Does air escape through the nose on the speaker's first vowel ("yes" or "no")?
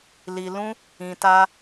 no